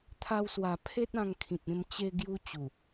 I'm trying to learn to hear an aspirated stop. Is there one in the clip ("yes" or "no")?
yes